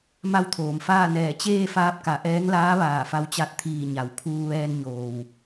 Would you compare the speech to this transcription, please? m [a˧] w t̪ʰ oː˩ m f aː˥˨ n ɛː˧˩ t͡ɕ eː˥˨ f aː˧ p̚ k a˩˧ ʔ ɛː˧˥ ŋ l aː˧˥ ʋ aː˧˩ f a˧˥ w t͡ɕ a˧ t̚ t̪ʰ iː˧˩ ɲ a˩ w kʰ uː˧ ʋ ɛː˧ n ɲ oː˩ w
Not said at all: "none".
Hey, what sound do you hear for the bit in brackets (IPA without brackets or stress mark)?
a˥˨